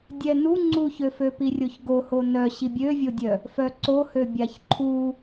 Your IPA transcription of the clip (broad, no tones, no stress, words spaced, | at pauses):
dʲɛnu ŋ͡ǀuçøføpi rʲoçɡoho nœ ɕibʲøvʲodʲœ | fœǀohø bʲaçǃʰu